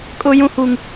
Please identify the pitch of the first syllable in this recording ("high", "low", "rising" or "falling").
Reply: high